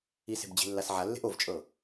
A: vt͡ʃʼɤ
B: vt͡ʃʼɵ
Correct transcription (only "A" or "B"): A